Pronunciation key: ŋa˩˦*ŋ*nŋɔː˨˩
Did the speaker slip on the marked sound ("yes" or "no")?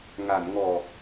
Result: yes